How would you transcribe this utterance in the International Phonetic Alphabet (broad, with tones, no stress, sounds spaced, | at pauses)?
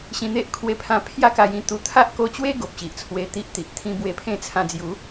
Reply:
ɕ ĩ˧ n̪ e˦ ʔ kʰ w e˧ pʰ ã˧ pʰ j a˦ k a˧ j ĩ˥˧ t̪ u˧ t̪ʰ a˦ ʔ k o˧ t͡ɕ w e˦ ɡ o˨ p̚ ɕ i˨ ʔ t͡sʰ w e˧ t̪ i˦ ʔ t̪ i˨ ʔ t̪ʰ ĩ˧ b w e˧ pʰ ẽ˥˧ t͡sʰ ã˧ d͡z j u˨˦